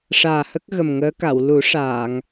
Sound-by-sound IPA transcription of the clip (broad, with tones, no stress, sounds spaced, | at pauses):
ʂ aː˨˩ h ə˦˥ k̚ ɣ ə˨˩ m ŋ əː˧˥ k a˨˩˨ w l u˨˩˦ ʂ aː˨˩˨ ŋ